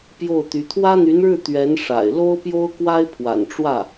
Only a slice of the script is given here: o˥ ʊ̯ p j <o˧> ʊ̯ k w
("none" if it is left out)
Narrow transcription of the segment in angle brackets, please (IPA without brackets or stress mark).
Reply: o˥